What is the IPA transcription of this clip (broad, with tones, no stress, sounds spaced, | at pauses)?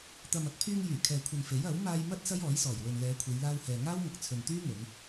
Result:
t̪ ɐ˨ m ɐ˨ k̚ pʰ yː˧ ŋ j yː˨˩ kʰ ɛː˨ kʷʰ ɐ˨ n f e˨˥ j ɐ˨˥ w m aː˧ j m ɐ˥ t̚ s ɐ˥ j ɔː˨˥ j s ɔː˨˩ j w ɵ˨ n l ɛː˨˧ kʷʰ e˨˧ j l aː˧ w h ɛː˨ ŋ aː˥ w ŋ ɐ˨ k̚ t͡sʰ ɵ˨ n t̪ yː˥ ŋ ɵ˨˧ n